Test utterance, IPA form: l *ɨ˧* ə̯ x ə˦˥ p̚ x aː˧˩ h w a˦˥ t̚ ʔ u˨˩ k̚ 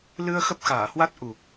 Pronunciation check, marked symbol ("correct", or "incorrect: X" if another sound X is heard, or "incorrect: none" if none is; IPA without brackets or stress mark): correct